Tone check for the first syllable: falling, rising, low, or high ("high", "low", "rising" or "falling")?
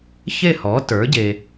falling